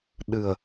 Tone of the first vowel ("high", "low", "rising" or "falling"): low